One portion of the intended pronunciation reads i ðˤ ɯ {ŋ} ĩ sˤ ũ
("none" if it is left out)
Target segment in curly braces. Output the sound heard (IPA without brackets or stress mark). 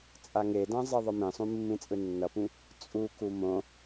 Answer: m